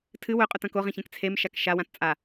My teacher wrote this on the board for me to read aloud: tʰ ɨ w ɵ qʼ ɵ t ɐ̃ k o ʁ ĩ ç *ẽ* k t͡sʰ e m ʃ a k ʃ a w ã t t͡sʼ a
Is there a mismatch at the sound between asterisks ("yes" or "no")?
no